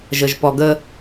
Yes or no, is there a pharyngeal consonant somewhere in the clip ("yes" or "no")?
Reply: no